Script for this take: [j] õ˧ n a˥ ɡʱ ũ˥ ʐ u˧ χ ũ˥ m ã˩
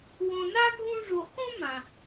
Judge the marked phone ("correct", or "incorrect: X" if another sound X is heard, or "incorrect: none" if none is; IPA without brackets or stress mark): incorrect: w